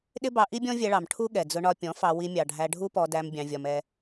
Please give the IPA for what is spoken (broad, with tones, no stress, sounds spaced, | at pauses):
ɗ ɪ˦ b ɑ˧ ʔ i˦ bʲ ɔ̃˦ vʲ ɛ˧ ɭ ɑ˨ m ʈʰ u˦ ɠ ɛ˨ d͡z ʊ˧ ɳ ɒ˧ pʲ ɔ̃˨˦ f ɑ˧ w i˧ mʲ ɑ˨ ɖʱ æ˧ ɖʱ u˦ p ɔ˧ d æ˧ m bʲ ɑ̃˧ vʲ ɒ˧ m ɛ˧